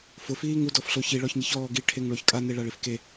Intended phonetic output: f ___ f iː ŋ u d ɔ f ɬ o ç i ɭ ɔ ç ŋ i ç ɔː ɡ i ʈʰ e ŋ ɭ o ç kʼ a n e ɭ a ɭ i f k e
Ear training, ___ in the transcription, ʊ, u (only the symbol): ʊ